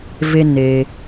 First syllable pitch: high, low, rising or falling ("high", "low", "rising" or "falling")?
high